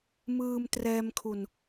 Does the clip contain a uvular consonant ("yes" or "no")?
no